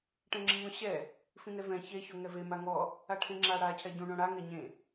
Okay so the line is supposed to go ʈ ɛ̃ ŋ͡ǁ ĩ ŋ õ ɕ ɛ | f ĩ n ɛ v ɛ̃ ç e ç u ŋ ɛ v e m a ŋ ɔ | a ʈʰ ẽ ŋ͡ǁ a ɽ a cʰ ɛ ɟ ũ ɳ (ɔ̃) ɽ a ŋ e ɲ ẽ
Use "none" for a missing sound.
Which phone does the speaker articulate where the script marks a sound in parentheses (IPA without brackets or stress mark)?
õ